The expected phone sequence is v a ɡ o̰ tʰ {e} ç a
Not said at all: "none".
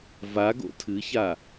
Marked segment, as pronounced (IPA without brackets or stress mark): ɨ